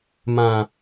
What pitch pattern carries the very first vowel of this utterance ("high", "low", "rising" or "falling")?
low